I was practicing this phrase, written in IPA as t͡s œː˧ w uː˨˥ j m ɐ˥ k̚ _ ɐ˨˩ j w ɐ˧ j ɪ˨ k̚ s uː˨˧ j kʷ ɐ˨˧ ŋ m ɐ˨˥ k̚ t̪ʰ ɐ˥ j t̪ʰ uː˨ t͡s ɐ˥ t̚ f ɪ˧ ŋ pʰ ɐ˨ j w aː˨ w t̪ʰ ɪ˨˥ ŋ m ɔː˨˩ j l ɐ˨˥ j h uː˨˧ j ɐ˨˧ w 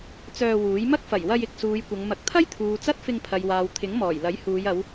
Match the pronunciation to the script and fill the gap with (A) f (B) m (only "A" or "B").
A